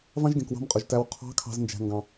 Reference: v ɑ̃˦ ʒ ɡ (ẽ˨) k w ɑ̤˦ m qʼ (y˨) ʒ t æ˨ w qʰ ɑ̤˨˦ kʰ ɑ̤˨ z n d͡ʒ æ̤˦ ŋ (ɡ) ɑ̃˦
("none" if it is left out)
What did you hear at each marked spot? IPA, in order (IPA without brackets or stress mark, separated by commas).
ẽ˨, y˨, ɡ